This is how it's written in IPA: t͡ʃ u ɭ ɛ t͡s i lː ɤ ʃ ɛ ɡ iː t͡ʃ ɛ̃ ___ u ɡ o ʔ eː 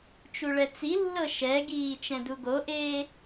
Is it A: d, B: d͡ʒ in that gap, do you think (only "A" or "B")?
A